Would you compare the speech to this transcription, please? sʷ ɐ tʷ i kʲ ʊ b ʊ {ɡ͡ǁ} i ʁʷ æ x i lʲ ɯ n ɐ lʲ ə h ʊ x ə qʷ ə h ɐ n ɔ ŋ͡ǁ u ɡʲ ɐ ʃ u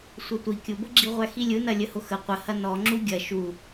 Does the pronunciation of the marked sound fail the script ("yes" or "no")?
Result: no